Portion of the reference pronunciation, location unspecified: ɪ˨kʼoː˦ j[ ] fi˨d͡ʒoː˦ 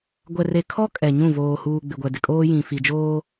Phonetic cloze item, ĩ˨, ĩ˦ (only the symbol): ĩ˨